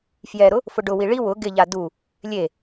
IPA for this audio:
f j ɛ ɾ ʊ | f ʊ ɖ ʊ w i ɭ i w ʊ ɡ ɪ ʎ a d u | lʲ e

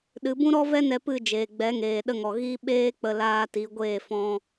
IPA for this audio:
ɗ ɨ˨˦ b ũ˦ ɾ ɔ˦ v ɛ˦ n ɛ˧ p ɨ˦˨ d͡ʒ eː˨ ɡ͡b ɛ˨˦ ŋ eː˨ ɗ ə˧ ŋ ɔ˨ ɣ i˦ ɓ eː˦ k͡p ə˧ l aː˧ t i˨˦ ɡʷ eː˦˨ f ɔ̃˧

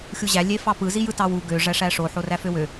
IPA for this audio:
xʲ u ʑ æ lʲ e f ɑ p ɯ z i j ɯ t ɑ w u ɡ ø ʐ æ ʂ æ ʂ o ħ o r æ f ø w ø

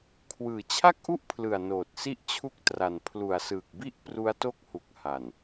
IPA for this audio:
kʰ w ɯː˨˩ t͡ɕʰ a˥˩ k̚ ʔ u˥˩ ʔ pʰ l ɯ˨˩ a̯ n oː˨˩ t̚ s i˥˩ ʔ t͡ɕʰ u˥˩ k̚ t r a˨˩ n pʰ l u˨˩ a̯ s ɯː˨˩ k̚ b i˥˩ ʔ p r u˦˥ a̯ t o˥˩ k̚ h u˨˩ k̚ h a˨˩ n

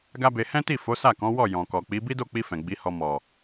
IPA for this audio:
ɡ a˦ b e˧ h ɛ̃˦ t i˦˨ f o˨˦ s a˦˨ k ɔ̃˨˦ w ɔ˦˨ j ɔ̃˨ k ɔ˨ k͡p i˨˦ b i˦ d o˦˨ k͡p i˧ f ɛ̃˨ ɡ͡b i˨˦ h ɔ˧ m ɔ˨

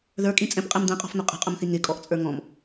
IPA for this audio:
ð ə˞ kʼ ĩ t͡sʼ ɛ̃ p qʼ ɛ m d̪ ɛ̃ qʼ ɔ̤ f n̪ ʊ qʼ ə̤ qʼ ʊ m θ i ŋ ɪ kʼ ɔ ʔ t͡sʼ ə˞ ŋ ɔ̃ m

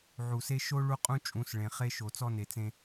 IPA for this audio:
ʕ u˨ s e˦ ʃ o˦ ɭ u˦ qʼ ũ˦ t͡ʃʼ ũ˨˦ s ɭ ẽ˨ χ e˦ ʃ o˨ t͡s ɔ˦ n e˨ t͡s ẽ˦

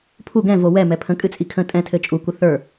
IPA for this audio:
pʰ u ɡ ɛ̃ v o w ɛ m ɛ pʰ ə̃ kʼ ɨ t͡sʼ i kʰ ə̃ tʼ ɛ̃ tʰ ɘ t͡ʃʼ u kʷ ə θ ə˞

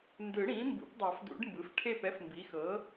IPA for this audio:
n d ɯ˨˩˦ ɽ ĩ˩˥ m b ṵ˩˥ p dˤ a˨˩˦ f d ṵ˨˩˦ ɖ m b ɯ˩˥ f ʈʰ e˥˨ p ɛ˧˥ f m b i˩˥ x ɤ˩˥

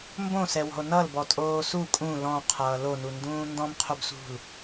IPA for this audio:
m b õ s ɛ w ɔ̤ o̯ n ʌ l b ɔ tʼ oː s u kʼ ũ l ɔ̃ qʰ ʌː l o n u n d ũː n d ɔ̃ m qʰ o b s ṳ l

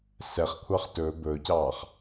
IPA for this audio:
s ɛ χ kʷʰ ɑ χ t ɵː b ɵː c ɑː χ

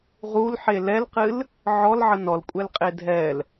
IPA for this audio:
ʁ u l ħ e l ɛ l q ɨ l | ʕ ɔ l ʕ ə n ɔ l kʷʼ ɛ l qʼ e dʱ ɛ l

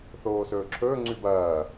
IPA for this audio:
θ oː s ɵː ǁʰ ɵː ŋ͡ǀ ʉ b ɐː

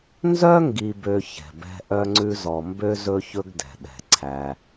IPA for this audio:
n z œ˥ ŋ ɡ i˨ b ø˨ ç ɛ̤˩ b ɛ̤˦ ʔ œ˦ ŋ͡ǀ ʉ˦ z ɔ˨ m b ø˥ z ɵ˥ ç ɵ˥ ɡ d ɛ̤˩ ɗ ɛ̤˩ ǀʰ æ˨

